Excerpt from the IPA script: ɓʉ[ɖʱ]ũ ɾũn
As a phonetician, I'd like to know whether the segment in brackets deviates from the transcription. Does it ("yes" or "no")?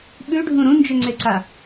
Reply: no